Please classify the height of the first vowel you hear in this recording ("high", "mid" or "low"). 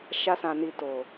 low